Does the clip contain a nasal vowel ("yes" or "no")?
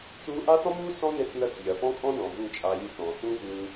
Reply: yes